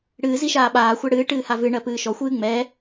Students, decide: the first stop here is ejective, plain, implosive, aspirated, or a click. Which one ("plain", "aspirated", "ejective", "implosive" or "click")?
implosive